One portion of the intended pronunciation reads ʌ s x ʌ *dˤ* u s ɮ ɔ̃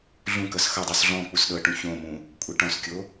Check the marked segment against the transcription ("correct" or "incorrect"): correct